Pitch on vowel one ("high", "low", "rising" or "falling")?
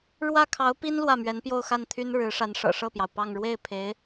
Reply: falling